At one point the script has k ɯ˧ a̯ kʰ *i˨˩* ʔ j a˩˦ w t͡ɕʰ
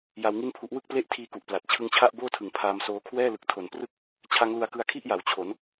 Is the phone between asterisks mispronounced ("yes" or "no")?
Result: yes